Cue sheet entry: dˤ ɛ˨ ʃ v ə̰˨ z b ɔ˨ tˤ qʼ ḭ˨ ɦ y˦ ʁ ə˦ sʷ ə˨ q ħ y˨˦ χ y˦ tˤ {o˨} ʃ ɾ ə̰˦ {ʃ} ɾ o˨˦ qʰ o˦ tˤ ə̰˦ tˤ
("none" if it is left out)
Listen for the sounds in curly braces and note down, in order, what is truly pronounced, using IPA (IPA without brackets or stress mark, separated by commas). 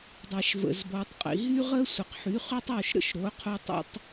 o˦˨, ʃ